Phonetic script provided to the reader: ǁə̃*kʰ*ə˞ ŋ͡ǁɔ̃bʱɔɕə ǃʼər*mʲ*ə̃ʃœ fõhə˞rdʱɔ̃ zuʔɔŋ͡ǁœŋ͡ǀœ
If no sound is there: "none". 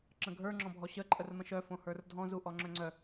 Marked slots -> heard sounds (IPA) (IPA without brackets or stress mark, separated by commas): ɡʱ, m